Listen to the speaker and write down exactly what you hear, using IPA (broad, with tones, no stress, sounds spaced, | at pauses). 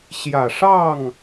ɕ j ä˨˩ ʂ ɑ˥˨ ŋ